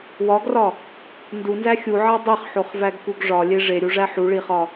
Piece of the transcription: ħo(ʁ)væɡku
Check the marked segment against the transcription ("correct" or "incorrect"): incorrect